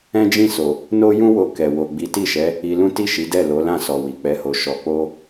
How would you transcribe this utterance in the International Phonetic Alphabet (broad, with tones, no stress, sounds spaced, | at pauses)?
ɛ̃˦ d͡ʒ ĩ˦˨ s o˨ | n o˦ j ũ˦ w o˧ k ɛ˨ w o˨ ɡ͡b i˨˦ t i˦˨ ʃ ɛ˨˦ | i˧ l ũ˦ t i˦˨ ʃ i˨˦ d ɛ˦˨ l o˨˦ l ã˦˨ s ɔ˨ w i˨ k͡p ɛ˨˦ h o˧ ʃ ɔ˧ k͡p o˦